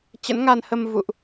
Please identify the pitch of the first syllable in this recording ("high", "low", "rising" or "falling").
rising